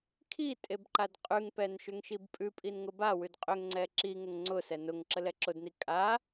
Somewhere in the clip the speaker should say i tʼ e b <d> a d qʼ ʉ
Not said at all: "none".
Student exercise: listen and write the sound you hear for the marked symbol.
ǃ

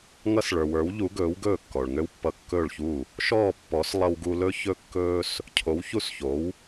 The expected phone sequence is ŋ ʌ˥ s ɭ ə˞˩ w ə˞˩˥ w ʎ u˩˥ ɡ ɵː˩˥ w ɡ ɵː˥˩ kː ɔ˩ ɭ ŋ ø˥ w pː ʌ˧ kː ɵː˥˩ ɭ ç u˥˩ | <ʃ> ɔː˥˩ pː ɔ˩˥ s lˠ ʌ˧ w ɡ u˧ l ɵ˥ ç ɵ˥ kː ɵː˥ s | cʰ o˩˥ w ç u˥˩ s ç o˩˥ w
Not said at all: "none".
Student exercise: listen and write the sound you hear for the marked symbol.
ʃ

